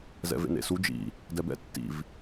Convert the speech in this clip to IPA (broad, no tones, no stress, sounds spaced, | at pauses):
z ɛ̰ v ḛ n ḛ s u d͡ʒ ḭ | d ɛ b ɛ̰ tː ḭ v